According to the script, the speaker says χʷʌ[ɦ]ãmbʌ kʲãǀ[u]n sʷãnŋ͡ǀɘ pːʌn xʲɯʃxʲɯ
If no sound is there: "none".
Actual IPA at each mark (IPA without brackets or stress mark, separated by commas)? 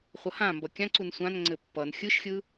h, u